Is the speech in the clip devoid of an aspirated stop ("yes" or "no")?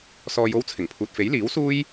no